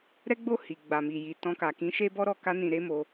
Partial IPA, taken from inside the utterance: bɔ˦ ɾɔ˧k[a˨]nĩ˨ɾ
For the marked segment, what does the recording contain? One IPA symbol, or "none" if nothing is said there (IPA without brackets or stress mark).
a˧